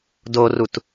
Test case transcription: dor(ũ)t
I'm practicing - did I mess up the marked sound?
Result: yes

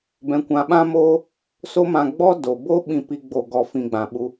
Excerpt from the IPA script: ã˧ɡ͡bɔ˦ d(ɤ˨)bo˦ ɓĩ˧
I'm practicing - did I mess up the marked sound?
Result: yes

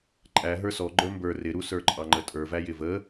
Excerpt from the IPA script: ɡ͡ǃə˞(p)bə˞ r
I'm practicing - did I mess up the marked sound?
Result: yes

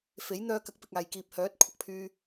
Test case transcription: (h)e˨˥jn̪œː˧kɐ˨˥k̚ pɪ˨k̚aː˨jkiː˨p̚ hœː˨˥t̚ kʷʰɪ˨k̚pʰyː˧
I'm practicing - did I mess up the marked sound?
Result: yes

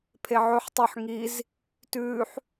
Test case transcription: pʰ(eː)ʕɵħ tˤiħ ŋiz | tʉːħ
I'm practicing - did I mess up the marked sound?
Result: yes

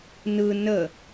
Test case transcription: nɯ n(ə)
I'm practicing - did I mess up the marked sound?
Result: no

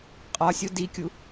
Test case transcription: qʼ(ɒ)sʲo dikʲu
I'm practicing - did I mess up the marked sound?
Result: no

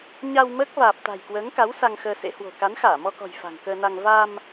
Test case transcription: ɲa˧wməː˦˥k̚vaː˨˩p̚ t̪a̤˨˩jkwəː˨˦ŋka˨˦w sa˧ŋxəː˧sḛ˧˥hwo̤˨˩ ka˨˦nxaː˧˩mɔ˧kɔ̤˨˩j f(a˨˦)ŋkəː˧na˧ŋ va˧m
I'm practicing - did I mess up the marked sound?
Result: yes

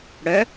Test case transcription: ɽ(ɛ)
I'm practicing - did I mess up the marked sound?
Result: yes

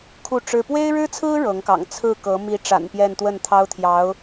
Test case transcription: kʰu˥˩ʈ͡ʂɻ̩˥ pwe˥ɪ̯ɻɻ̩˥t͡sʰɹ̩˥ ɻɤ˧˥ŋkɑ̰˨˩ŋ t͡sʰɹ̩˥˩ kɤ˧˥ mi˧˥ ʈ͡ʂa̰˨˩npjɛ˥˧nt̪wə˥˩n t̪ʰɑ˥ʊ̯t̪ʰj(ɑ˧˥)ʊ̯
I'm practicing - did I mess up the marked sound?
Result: no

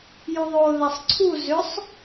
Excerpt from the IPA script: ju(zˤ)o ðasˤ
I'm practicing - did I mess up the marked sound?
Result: yes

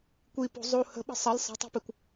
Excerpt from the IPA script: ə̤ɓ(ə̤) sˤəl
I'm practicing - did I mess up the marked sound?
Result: no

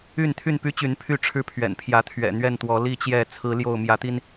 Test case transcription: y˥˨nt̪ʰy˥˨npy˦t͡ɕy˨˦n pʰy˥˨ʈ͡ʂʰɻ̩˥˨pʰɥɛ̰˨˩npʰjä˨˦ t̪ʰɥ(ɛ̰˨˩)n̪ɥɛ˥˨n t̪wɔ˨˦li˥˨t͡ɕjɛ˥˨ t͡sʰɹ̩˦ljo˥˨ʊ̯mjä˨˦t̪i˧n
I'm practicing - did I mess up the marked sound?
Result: no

